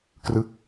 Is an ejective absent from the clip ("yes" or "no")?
yes